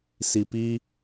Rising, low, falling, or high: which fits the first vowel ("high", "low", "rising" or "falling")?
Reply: low